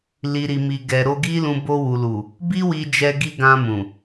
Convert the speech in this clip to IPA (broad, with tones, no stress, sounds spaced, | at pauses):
l i˨ ɾ i˨ m i˨ ɡ ɛ˨ ɾ o˧ ɡ i˦ l ũ˧ b o˧ w u˨ l u˨ | b i˦ w i˧ d͡ʒ ɛ˧ ɡ i˧ ɡ ã˧ m ũ˨